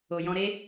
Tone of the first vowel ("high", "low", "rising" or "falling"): low